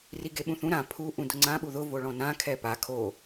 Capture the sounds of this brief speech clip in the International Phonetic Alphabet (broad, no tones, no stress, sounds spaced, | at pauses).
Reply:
r i ɡ e ɓ ũ θ ũ ɾ ã pʰ u ʔ ũ d ʊ ŋ͡ǀ ã ɓ u ð ʊ v o ɭ ɔ̃ n ã kʰ ɛ p a kʰ o